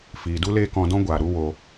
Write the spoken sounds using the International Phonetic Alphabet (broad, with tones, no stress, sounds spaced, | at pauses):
f iː˨ d u˦ l eː˦ k ɔ̃˧ d ɔ̃˦ ɡʷ aː˨ ɾ u˦ w o˧